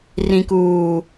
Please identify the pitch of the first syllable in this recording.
low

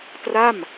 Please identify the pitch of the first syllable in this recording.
falling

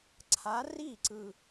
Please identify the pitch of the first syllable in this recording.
rising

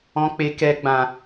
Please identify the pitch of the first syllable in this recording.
high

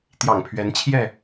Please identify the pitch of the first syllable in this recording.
low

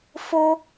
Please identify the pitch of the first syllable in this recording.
high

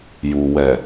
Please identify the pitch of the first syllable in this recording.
low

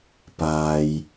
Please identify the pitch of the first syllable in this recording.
low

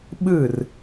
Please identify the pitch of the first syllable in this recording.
falling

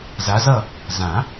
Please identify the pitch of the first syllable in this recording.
rising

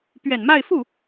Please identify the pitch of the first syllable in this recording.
low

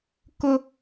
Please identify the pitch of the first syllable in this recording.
high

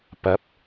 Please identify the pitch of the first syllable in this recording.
rising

